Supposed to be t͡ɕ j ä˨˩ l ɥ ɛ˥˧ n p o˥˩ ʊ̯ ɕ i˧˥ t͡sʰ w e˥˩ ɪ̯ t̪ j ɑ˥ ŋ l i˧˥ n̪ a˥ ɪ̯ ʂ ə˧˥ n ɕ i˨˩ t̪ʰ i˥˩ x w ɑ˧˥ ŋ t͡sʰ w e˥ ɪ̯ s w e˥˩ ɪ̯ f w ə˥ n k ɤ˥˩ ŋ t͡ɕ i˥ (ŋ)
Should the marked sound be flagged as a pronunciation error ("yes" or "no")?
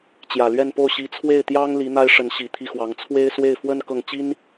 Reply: yes